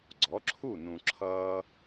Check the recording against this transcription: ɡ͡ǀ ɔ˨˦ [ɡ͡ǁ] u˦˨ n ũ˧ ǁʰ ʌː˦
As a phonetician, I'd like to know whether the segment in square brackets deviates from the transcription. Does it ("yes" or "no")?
yes